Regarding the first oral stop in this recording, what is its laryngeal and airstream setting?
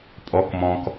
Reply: ejective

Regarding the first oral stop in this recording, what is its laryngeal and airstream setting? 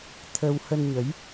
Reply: aspirated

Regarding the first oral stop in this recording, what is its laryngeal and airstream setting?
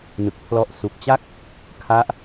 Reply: plain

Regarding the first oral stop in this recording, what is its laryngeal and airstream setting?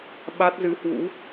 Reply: implosive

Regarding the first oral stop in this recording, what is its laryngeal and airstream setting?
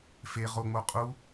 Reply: ejective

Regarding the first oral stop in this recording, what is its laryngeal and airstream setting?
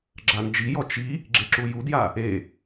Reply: click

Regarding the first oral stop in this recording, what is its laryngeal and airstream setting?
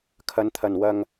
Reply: aspirated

